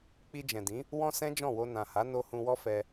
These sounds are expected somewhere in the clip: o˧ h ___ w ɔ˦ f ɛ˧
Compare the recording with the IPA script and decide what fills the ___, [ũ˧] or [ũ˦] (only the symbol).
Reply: ũ˧